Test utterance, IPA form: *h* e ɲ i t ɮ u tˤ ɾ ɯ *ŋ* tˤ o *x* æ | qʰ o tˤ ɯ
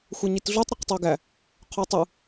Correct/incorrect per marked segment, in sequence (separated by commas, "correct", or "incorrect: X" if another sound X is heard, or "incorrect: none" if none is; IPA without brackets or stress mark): incorrect: xʷ, incorrect: q, incorrect: ɡ